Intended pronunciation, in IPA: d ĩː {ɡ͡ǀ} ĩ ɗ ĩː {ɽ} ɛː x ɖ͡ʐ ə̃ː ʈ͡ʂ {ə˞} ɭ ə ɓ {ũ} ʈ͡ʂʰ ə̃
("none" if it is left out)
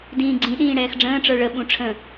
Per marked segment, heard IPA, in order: ɡ͡ǀ, ɽ, ə˞, ũ

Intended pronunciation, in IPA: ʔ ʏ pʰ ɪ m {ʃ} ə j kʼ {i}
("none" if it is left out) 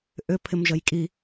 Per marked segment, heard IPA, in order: ʒ, i

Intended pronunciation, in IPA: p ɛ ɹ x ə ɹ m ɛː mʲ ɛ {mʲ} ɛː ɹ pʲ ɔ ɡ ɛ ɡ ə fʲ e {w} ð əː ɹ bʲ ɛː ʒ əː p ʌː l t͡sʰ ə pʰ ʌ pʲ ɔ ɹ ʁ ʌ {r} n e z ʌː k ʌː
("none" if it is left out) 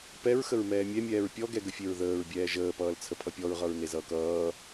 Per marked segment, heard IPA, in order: mʲ, ɹ, ɹ

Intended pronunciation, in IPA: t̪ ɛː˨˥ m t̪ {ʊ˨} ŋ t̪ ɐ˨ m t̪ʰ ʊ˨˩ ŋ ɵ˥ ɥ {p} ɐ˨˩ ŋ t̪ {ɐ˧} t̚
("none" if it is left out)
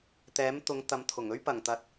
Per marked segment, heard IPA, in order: ʊ˨˧, p, ɐ˨

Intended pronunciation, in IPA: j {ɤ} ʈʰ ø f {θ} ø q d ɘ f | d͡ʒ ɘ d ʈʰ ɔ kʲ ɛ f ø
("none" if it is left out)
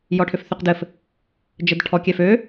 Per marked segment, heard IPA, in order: ɔ, θ

